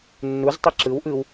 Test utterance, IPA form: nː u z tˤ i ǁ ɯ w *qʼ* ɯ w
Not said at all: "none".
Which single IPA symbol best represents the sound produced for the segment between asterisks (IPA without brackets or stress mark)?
ʔ